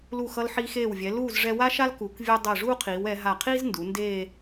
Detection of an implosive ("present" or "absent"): absent